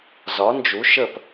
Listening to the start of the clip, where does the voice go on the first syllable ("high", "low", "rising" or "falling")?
rising